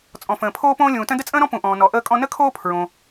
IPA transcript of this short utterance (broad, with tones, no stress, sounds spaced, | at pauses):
t͡sʼ ɔ̃˩ f ə̃ː˩ pʰ oː˧ p õː˧ lʲ ũː˩ t ə̃˧ d ə˥ t͡sʼ ə̃ː˥ ɾ ɔ̃˥ p ũ˩ ʔ ɔ̃ː˩ n ɔ˩ ʔ əː˧ kʼ ɔ̃˧ n ə˥ kʰ oː˥ pʰ ɹ õ˩